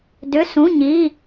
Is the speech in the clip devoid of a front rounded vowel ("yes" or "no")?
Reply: no